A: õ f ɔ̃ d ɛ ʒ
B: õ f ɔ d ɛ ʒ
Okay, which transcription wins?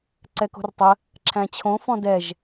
A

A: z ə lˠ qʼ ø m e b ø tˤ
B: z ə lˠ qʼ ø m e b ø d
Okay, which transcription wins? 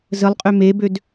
B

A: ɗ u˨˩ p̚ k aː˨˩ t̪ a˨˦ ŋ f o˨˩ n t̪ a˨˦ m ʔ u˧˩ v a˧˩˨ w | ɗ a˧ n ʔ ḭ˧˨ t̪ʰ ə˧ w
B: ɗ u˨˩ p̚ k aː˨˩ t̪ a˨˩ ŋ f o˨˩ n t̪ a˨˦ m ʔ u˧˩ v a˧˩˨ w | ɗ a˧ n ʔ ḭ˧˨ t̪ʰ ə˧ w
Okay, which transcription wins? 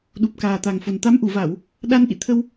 B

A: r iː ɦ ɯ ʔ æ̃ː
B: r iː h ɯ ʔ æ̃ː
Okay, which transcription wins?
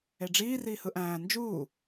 B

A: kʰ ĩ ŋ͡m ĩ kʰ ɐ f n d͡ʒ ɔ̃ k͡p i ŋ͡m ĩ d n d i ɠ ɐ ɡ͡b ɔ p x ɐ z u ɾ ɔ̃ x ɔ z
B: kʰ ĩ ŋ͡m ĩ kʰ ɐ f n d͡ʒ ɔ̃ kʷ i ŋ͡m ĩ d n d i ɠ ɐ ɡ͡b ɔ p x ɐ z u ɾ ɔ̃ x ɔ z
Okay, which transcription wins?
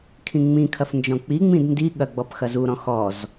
A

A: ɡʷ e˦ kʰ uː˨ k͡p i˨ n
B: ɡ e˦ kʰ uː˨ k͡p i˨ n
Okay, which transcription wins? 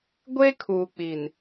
A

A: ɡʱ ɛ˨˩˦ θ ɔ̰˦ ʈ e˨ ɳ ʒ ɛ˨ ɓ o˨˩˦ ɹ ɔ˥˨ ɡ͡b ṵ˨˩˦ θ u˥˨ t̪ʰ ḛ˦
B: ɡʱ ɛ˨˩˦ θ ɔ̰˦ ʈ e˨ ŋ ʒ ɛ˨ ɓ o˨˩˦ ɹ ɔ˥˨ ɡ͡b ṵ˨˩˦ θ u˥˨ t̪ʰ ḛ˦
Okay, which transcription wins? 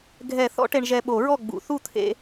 A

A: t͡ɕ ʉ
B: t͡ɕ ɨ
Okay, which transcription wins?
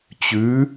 A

